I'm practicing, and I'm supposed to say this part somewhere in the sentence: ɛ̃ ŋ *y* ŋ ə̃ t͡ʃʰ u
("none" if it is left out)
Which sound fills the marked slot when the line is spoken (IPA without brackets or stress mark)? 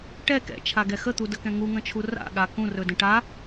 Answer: u